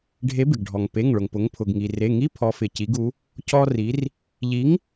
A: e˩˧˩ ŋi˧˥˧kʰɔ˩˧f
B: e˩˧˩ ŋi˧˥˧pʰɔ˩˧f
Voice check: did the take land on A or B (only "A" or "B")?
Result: B